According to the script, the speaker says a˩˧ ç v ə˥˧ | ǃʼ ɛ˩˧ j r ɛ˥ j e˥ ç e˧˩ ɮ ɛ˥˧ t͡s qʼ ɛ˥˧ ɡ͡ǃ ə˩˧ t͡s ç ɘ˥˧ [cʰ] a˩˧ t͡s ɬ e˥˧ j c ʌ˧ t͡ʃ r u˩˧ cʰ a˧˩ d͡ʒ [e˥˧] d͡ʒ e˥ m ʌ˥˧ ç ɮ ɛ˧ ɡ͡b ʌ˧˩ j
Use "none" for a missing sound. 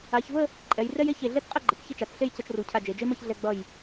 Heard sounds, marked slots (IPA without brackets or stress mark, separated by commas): t͡ʃ, e˩˧